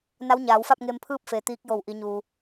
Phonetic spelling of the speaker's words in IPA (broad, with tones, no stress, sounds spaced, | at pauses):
n a˧˥ w ɲ aː˩˧ w f a˥˨ p̚ ŋ e˧ m pʰ ɯː˥˨ p̚ f e˩˧ t̪ iː˧˥ k̚ j o˧˩ w ʔ i˩˧ ɲ uː˩